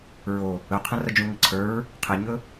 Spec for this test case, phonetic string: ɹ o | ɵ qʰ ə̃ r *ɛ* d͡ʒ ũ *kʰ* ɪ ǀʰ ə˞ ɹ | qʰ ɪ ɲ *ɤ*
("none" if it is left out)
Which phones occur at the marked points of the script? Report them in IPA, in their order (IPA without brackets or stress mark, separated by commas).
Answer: ə, ŋ, ɵ